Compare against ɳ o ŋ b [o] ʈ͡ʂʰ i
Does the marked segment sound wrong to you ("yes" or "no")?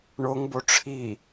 no